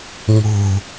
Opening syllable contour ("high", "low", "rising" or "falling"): low